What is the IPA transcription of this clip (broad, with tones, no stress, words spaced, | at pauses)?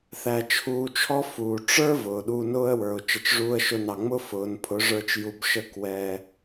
θæ˧t͡ʃʰuː˧t͡ʃʰɔ˦fuː˨ ʈ͡ʂə˞˦ vʊː˨ɗuː˧nʊː˦ə̯wə˞˨ʊ̯ t͡ʃə˨t͡ʃʐuː˧ə̯ʃʊ˧nɑ˨ ŋ͡mʊ˦fʊː˨npʰʊ˨˦ʐə˞˧t͡ʃ ju˧bʃə˦˨kwɛ˧